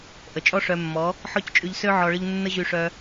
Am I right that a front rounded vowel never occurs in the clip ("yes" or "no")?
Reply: no